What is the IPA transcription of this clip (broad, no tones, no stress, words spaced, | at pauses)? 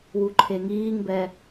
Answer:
wuǃʰeŋiːŋbɛ